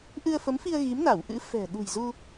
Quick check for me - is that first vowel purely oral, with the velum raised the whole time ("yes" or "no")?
yes